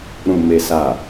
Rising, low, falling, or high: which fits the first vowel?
low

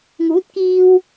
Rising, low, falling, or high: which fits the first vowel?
rising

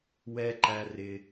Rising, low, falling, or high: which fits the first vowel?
high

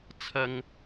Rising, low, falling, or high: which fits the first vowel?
high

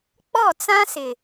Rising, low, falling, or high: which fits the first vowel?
falling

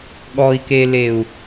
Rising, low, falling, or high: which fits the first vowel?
low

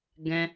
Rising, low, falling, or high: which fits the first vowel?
high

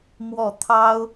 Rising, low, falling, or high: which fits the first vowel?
falling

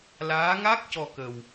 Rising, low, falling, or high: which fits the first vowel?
rising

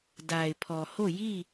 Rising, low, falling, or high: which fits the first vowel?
low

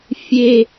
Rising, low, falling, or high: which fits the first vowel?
high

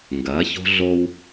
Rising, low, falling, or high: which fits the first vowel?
rising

